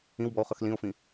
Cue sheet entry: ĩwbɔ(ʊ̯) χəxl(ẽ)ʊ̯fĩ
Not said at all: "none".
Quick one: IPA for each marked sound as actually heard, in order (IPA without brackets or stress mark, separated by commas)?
ʊ̯, ĩ